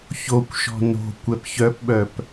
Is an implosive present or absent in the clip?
present